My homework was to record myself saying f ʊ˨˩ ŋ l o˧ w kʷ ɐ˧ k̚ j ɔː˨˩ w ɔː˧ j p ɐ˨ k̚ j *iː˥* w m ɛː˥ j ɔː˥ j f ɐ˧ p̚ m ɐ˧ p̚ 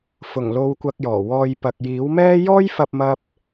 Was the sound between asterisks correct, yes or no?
no